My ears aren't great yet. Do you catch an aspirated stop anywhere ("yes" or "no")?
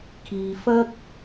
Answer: yes